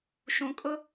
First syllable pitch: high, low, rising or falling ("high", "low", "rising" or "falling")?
low